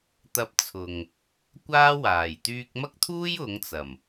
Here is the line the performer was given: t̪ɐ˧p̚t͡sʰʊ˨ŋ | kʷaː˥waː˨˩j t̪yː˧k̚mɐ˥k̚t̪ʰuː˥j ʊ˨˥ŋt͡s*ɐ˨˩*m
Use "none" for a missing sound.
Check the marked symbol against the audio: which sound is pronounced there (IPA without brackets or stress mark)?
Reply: ɐ˨˩